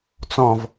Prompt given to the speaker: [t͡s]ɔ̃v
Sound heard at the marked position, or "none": t͡s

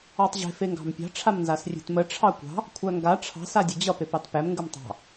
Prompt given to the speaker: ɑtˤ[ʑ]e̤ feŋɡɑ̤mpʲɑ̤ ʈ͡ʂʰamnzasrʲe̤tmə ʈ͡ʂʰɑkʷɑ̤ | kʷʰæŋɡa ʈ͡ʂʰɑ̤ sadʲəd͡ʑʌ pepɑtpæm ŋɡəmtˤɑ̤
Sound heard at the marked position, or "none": ʑ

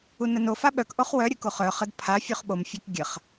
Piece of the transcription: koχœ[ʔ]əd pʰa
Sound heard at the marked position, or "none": χ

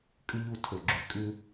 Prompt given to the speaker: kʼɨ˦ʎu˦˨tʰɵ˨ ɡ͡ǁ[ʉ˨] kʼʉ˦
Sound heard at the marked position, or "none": ʉ˨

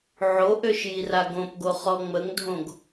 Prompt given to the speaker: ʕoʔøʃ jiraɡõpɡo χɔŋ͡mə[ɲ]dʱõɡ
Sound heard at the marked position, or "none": ŋ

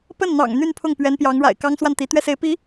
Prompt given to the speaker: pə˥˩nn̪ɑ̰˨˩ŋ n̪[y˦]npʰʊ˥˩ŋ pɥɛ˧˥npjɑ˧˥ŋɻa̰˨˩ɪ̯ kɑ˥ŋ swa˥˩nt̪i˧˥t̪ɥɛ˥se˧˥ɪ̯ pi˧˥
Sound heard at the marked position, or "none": y˥˧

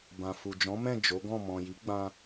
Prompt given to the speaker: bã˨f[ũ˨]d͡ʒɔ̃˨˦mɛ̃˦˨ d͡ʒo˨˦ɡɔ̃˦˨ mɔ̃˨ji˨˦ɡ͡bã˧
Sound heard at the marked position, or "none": u˨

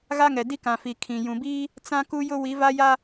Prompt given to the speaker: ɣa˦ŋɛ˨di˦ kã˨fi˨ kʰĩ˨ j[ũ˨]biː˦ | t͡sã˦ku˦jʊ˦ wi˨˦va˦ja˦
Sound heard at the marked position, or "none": ũ˨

